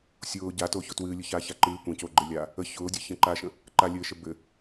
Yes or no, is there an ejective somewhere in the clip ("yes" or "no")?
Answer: no